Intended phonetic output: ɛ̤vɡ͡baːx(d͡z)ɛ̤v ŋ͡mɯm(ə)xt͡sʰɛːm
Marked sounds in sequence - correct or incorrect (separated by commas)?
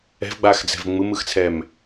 correct, incorrect